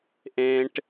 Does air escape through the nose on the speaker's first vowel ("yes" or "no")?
yes